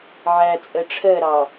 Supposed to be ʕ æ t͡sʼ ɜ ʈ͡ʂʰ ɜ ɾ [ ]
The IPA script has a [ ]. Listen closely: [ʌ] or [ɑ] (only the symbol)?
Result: ɑ